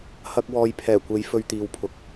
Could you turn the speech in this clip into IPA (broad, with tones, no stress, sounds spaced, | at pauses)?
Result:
h ɐ˧ k̚ w ɔː˧ j pʰ ɛː˨˩ kʷ e˨˧ j f ɵ˧ ɥ t̪ iː˨ w pʰ ʊ˨˥ k̚